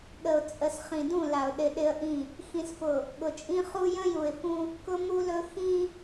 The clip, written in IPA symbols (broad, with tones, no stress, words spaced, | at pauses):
ɠə˨ʊ̯ t͡sʼə˨s χĩ˨dũ˦˨la˨ʊ̯ ɗɪ˨ ɗɪ˦ə̯ʔĩ˦˨ | xĩ˨sfʊ˨ | ɠʊ˨t͡ʃʼĩ˦ χu˦ jə̃˦ju˨ɪ̯fũ˦ | kʊ˦mu˦lɵ˦ xĩ˦